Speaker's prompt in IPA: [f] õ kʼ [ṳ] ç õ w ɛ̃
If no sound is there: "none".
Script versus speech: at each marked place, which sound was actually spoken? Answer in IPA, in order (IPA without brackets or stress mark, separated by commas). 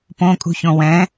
p, ṳ